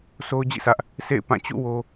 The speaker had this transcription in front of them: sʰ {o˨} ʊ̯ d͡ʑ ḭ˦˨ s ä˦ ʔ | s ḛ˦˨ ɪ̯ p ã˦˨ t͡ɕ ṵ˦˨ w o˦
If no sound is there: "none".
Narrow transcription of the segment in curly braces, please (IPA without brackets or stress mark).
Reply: o˦